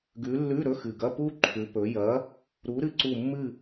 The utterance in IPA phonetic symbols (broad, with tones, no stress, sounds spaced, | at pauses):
ɡ ʉ˨˦ lː ʉ˧˥˧ ɾ ɵ˧˥˧ x ɨ˨˩ ɡ ɐ˧˥˧ p u˥ ǃʰ ʉ˨˦ p ɵ˨˦ j ɐ˨˦ | ɾ u˨˦ ɾ ɨ˧˥˧ ǀ u˦˨ mː ɨ˦˨